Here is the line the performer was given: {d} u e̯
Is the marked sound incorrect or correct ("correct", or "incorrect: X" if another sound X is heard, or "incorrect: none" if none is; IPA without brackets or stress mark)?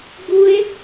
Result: incorrect: ɡ